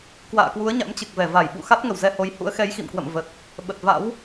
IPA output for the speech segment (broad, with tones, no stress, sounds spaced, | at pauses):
k w a̰ː˧˨ k w u˨˦ ə̯ ɲ a̰˧˥ m t͡ɕ ɨ˨˩ k̚ v ɛ˧˩ v a˧˩ j ɓ ṵ˧˨ x a˦˥ t̚ ŋ ə˧˩ w z ɛ˧ h o˨˦ j h ṵ˧˥ ə̯ x ɛ˨˦ j x ḭ˧˨ m k w ə̰˧˨ m v ə˨˩ t̚ | ɓ ə˨˩ t̚ v a̰˧˥ w